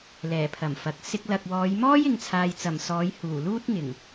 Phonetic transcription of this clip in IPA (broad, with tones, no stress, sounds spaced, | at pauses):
l ɛː˨˩ pʰ ɐ˨˩ m f ɐ˨ k̚ s ɪ˧ k̚ l ɐ˨ k̚ w ɔː˨˧ j m ɔː˥ j ɪ˨ ŋ t͡sʰ aː˨ j t͡s ɐ˨˩ m s ɔː˨˧ j h uː˨˩ l uː˥ t̚ ŋ ɪ˨˩ ŋ